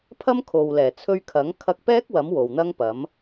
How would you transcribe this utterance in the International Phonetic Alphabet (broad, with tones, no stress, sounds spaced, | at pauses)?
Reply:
pʰ ɐ˥ m kʰ o˨ w l ɛː˨˩ t͡sʰ ɵ˧ ɥ kʰ ɐ˨˥ ŋ kʰ ɐ˧ k̚ p ɛː˥ k̚ w ɐ˨˥ m w o˨ w n̪ ɐ˥ ŋ p ɐ˨˥ m